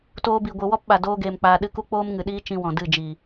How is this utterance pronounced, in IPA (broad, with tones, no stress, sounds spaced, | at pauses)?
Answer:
t oː˧ b i˨ ɡʷ ɨ˨ w ɔ˦ p ɓ a˨ d oː˦ ɡ eː˧ m k͡p aː˧ ɗ ɨ˧ k u˦ k͡p oː˦ m ŋ ɨ˨ ɗ iː˦ t͡ʃ ĩ˧ w ɔ̃˨ d ɨ˦˨ d͡ʒ i˨